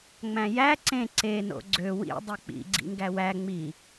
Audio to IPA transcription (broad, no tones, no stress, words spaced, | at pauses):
ŋ͡mæ̃jæ ǀẽ ǀeno̰ ɡ͡ǀø wḭdˤɯ k͡pḭɡ͡ǀḭ ŋɡæwæ ŋ͡mi